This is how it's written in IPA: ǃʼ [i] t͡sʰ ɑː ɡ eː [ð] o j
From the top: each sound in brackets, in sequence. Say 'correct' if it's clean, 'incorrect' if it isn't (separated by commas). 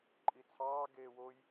correct, incorrect